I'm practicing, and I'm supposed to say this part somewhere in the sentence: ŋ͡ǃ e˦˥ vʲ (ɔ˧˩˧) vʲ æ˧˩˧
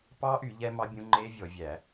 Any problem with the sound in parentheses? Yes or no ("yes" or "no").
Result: no